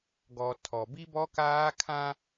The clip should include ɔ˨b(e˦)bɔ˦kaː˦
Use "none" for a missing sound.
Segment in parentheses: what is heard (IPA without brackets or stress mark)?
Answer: i˦